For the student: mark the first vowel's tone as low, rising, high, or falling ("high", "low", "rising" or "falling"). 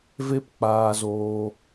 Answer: high